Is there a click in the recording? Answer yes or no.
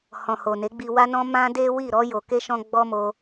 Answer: no